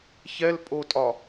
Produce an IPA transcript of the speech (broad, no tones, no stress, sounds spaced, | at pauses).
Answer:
ç ɛ l pʼ o tʼ ɒ